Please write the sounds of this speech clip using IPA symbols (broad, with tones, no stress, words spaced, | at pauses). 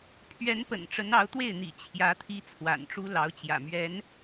pʰɥɛ˧˥npə̰˨˩n ʈ͡ʂə˧˥nɑ˧˥ʊ̯t̪we˥˩ɪ̯n̪ḭ˨˩ t͡ɕʰjä˧˥ t̪ʰi˥t͡sʰwa̰˨˩nʈ͡ʂu˥ lɑ˧˥ʊ̯t͡ɕjä̰˨˩mɥɛ˧˥n